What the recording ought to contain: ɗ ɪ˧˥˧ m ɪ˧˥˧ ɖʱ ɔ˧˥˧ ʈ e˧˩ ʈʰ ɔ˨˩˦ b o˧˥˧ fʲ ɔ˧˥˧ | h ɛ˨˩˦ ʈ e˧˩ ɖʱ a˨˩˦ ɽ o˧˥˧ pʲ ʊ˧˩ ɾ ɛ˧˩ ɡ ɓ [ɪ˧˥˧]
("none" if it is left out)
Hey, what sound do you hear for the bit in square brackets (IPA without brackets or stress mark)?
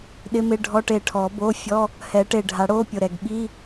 i˧˥˧